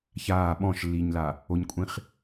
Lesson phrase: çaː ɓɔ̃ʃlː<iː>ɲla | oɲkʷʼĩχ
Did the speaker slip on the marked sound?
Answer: no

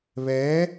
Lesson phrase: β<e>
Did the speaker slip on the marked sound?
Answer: yes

